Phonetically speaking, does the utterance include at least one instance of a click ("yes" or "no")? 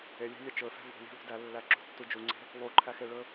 yes